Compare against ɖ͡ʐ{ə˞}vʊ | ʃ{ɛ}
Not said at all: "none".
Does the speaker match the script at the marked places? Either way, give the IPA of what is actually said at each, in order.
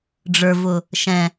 ə˞, ɛ̃

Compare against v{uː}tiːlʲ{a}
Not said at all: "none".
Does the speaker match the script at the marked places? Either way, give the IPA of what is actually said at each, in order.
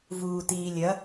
uː, ɐ

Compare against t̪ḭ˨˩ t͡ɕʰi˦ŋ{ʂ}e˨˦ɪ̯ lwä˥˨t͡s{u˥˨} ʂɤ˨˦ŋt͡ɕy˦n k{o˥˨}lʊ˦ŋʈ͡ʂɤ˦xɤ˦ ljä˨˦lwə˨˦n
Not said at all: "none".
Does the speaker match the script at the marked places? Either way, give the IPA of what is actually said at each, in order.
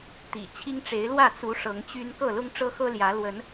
ʈ͡ʂ, u˨˦, ɤ˥˨

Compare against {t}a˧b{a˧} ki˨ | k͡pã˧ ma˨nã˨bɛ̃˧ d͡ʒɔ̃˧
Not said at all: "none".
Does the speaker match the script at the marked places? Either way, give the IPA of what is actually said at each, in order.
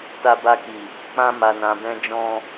t, a˧

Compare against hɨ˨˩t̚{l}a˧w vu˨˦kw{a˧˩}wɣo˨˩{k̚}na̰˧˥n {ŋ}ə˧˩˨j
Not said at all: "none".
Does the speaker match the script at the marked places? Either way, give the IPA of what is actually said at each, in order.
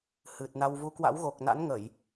n, a̰˧˥, k̚, ŋ

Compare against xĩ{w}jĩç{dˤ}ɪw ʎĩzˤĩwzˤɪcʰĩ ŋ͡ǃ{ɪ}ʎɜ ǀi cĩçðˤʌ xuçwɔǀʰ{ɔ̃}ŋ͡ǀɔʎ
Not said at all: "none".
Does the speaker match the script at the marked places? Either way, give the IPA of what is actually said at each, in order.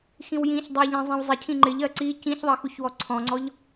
w, dˤ, ɪ, ɔ̃

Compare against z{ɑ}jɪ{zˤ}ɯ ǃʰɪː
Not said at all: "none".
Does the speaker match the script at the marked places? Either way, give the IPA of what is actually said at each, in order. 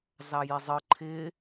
ɑ, zˤ

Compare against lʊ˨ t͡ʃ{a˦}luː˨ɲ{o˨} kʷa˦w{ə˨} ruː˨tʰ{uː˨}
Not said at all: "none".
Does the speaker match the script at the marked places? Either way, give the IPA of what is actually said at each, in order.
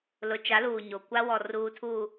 a˨˦, o˨, ɔ˨, uː˨

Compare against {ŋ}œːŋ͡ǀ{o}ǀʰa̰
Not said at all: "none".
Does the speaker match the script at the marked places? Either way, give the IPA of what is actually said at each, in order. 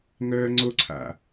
ŋ, o

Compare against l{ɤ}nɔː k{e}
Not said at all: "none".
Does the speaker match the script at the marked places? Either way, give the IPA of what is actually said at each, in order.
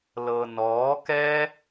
ɤ, ɛ

